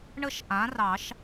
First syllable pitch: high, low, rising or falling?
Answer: high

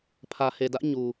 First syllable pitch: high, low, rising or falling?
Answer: low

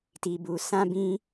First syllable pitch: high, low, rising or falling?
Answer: low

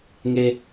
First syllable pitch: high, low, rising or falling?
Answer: low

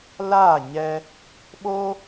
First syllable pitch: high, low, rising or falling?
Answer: falling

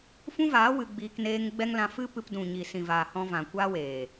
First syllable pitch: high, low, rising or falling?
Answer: high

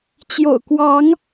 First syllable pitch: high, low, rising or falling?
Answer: low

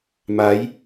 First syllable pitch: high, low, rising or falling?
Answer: rising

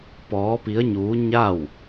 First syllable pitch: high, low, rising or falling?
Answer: rising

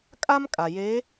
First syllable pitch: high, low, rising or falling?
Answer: high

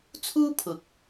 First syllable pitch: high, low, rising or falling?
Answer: high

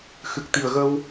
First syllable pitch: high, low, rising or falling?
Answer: low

